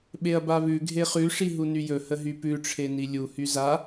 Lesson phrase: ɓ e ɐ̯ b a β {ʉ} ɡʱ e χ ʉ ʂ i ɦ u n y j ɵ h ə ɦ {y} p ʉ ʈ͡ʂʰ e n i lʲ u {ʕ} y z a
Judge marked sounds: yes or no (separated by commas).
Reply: yes, yes, no